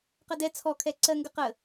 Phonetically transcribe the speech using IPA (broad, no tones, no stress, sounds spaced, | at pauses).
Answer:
q ə d ɛ t͡sʰ ɔ kʰ ɛ ǀ ɜ ŋ ɡ ə q ə